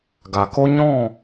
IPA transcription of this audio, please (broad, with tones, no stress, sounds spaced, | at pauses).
ɡ a˨ k o˦ ɲ ɔ̃˦˨